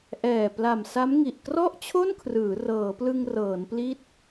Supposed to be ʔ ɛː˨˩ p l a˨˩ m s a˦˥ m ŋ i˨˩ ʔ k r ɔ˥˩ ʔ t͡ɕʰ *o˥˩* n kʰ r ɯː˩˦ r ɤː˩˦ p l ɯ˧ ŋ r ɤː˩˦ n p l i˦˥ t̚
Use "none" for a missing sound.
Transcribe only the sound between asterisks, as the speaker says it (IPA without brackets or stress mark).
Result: o˥˩